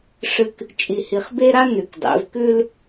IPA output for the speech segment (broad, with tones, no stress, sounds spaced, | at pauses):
ʂ ɨ˦ k | t͡ʃʼ i˨ h i˨ χ b e˦ ɾ a˦ n ʉ˨ k dˤ ḛ˨˦ v k ʉ˦ l